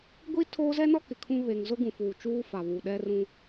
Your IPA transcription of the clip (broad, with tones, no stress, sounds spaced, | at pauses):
ɡʷ i˦ tʰ oː˦ z ɛ˦ n ɔ˦ k ɪ˨ kʰ ũ˦ β e˨ ŋ z ʊ˦ ɡ ũ˨ f uː˨ t͡ʃ uː˦ f a˨ β u˨ ɗ ɛ˦ r ũ˦